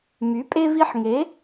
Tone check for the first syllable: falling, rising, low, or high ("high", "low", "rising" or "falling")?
rising